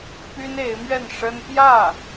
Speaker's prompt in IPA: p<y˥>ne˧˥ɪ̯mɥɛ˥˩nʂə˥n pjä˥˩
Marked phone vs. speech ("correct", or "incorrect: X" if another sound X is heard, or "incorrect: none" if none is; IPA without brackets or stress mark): correct